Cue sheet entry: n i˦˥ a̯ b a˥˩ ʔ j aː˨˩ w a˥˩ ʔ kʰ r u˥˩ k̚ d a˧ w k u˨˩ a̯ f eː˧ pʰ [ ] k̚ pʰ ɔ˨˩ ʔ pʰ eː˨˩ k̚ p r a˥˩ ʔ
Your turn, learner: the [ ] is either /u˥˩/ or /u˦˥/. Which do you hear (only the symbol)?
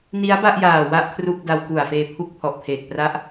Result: u˦˥